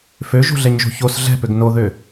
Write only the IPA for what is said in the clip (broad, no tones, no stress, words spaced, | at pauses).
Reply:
føʒo̤ɮɛɲʒo̤ ços ɮɛ̤pøɡ noðø